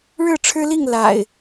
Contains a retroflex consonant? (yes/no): yes